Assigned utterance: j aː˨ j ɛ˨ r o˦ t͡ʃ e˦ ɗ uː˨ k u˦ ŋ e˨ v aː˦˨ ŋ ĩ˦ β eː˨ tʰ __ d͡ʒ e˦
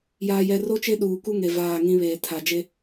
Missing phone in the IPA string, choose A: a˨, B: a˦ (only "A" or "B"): A